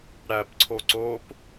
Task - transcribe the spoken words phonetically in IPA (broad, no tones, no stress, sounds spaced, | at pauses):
ɽ æ p ǀʰ o ǀ o p